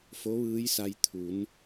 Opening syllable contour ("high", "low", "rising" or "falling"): rising